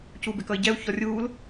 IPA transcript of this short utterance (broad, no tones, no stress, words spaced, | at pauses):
cubɪkʌi̯ɟɛu̯ çɔrʲuːl